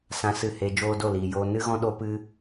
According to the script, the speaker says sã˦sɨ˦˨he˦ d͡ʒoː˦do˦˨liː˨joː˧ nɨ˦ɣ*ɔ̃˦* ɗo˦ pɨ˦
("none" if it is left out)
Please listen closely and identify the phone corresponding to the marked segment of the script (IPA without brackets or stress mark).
ɔ̃˦